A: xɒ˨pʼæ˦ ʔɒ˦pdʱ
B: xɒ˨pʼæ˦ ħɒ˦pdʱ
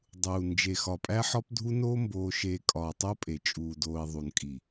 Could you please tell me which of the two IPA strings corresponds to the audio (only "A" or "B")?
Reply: B